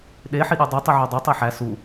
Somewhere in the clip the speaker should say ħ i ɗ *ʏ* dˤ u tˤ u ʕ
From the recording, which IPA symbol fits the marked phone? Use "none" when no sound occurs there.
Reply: u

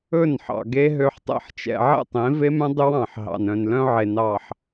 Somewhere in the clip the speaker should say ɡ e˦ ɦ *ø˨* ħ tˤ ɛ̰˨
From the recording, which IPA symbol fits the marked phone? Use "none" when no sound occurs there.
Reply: ø˨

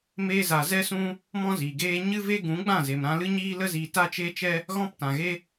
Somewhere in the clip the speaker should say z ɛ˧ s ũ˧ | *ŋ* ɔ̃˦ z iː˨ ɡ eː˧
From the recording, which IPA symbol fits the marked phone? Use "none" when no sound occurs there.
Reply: m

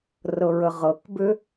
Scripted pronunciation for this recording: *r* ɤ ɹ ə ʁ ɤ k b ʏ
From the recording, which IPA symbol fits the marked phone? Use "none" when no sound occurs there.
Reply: r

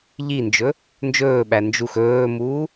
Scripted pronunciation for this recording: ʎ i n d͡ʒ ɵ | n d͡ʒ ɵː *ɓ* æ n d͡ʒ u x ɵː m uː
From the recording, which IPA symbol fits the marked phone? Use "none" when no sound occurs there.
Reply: ɓ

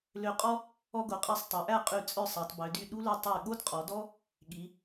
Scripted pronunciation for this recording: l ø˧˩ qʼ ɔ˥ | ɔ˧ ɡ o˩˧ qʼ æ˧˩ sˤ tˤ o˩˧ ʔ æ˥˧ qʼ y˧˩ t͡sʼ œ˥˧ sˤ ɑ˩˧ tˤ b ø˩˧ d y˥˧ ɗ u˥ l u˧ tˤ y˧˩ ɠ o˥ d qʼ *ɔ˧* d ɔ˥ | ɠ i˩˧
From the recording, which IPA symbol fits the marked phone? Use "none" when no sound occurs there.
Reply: ɔ˩˧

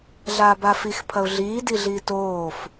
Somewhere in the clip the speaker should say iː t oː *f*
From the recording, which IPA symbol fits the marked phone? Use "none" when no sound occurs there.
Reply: f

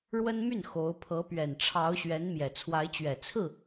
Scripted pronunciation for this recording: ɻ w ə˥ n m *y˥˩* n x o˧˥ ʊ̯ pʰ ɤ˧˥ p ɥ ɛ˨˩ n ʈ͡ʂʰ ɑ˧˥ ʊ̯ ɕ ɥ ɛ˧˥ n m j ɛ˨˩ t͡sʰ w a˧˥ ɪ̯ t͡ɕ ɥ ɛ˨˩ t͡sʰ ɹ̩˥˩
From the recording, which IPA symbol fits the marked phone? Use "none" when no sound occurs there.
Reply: y˥˩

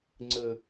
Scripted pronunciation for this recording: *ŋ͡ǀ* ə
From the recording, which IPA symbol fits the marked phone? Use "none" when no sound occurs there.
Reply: ŋ͡ǀ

